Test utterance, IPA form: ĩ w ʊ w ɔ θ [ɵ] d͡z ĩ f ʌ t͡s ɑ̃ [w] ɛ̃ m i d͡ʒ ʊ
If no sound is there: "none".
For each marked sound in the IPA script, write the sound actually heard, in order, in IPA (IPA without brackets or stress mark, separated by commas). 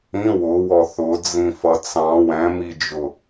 ʊ, w